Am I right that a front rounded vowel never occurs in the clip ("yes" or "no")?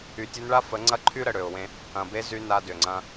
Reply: no